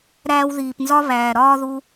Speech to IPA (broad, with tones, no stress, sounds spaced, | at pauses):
ɾ æː˧ w ð iː˨ p n z ɒ˦ β æː˨ ɾ ɒː˦ ð u˧